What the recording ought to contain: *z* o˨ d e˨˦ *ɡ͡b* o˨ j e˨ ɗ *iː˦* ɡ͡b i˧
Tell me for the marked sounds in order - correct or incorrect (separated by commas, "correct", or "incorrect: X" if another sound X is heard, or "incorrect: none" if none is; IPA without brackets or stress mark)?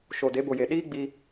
incorrect: ʃ, incorrect: b, correct